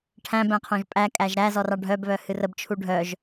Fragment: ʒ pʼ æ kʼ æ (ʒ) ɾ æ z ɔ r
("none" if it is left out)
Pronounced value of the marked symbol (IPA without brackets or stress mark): ʒ